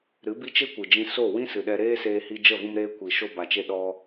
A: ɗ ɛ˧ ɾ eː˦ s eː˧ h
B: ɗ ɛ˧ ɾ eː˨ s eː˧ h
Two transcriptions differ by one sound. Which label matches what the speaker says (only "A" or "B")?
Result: A